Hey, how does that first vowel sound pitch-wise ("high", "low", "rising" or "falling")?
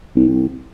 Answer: low